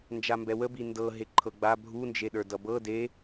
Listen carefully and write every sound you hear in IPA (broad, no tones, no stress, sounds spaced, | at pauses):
n d͡ʒ a m b ɛ w ə b i n d ɤ ɦ e ǃʰ ɤ ɡ͡b a bʱ u n d͡ʒ e ɗ ə˞ d ʌ b ɤ d e